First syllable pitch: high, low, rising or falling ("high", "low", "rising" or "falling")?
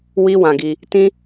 high